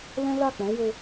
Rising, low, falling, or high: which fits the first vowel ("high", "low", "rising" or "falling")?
high